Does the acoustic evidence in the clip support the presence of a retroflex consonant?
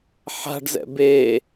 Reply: yes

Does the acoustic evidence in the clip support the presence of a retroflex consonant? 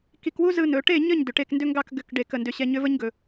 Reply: yes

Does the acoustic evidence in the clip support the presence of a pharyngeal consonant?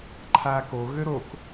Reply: no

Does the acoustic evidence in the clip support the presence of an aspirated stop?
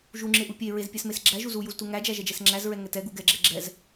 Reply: no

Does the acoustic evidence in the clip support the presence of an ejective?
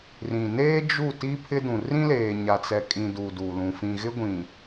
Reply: yes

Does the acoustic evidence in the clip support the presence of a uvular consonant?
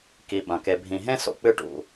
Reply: no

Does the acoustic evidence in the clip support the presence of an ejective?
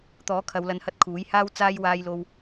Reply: no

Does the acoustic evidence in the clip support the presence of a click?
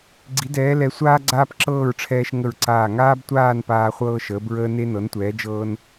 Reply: yes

